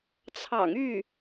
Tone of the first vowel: low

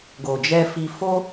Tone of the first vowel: low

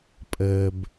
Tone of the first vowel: low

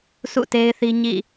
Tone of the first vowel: falling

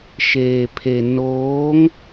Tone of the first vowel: low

